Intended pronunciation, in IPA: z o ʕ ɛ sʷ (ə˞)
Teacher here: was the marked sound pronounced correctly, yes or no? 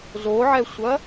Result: no